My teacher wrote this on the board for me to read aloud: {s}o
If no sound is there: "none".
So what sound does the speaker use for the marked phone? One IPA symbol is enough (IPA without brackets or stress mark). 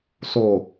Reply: s